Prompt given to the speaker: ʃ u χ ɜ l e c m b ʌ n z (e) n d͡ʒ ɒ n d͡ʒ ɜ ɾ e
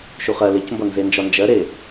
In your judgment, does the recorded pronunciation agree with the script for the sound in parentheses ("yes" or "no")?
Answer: yes